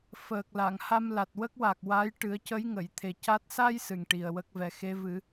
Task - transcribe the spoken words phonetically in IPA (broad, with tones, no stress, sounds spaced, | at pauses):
f əː˨˩ k̚ l a˨˩˨ ŋ h a˧ m l a˨˩ t̚ w ə˦˥ k̚ w a˨˩ k̚ w a˧˥ j ʈ ɨ˨˩˦ ə̯ c ə˧˥ j ŋ ə˨˩˨ j t̪ʰ e˨˩ c a˦˥ t̚ s a˧ j s ɨ˨˩ ŋ ʈ i˨˩ ə̯ w ə˦˥ k̚ v ɛ˨˩ x e˧˥ v ɨ˨˩˦